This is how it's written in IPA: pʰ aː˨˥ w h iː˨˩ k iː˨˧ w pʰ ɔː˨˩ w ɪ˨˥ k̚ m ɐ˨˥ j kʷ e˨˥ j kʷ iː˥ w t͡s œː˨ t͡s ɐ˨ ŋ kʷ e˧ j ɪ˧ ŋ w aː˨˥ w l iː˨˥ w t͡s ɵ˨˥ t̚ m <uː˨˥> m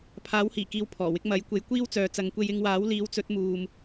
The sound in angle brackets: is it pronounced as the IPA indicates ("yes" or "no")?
no